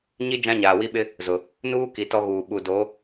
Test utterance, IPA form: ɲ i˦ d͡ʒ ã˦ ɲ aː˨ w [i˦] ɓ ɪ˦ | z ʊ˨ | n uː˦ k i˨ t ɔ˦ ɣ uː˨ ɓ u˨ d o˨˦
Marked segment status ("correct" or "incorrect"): correct